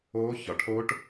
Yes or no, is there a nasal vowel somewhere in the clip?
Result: no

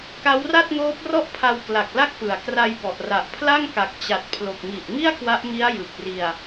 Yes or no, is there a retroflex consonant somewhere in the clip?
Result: no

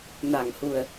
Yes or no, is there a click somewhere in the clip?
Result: no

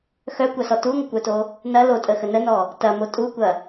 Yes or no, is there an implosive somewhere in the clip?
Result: no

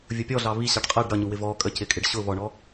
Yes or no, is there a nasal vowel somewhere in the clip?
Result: no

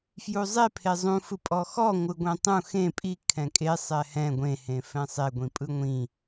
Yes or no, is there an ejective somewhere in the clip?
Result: yes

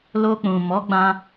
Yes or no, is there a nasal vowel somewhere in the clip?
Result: yes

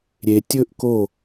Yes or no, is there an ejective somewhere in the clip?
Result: no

